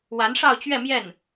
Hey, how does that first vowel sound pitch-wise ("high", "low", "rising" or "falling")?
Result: rising